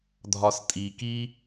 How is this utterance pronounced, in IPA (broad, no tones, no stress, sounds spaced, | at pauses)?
dʱ ɒ s tʼ i k i